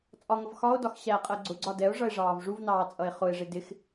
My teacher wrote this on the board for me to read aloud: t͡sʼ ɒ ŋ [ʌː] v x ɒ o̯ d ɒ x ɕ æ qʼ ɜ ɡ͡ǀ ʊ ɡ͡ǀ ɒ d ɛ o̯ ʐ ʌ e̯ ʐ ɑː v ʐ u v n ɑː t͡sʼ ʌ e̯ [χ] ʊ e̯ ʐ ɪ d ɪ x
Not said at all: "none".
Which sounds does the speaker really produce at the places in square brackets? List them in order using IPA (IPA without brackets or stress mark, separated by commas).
ʌ, χ